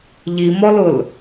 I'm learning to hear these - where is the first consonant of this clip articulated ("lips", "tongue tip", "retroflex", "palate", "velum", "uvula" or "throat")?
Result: palate